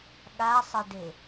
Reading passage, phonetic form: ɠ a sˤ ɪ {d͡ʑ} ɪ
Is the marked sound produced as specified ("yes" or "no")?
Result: no